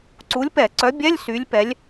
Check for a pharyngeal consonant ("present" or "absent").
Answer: absent